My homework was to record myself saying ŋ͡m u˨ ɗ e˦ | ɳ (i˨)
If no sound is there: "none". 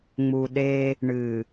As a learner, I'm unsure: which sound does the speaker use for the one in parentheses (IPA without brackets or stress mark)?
ɨ˨